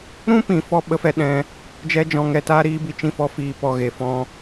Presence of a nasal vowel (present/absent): present